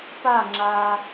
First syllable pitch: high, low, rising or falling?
falling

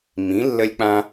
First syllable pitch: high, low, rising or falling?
rising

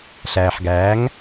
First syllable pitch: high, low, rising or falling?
low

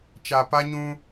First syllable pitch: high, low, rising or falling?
low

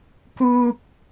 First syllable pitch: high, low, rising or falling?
high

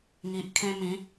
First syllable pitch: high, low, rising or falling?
low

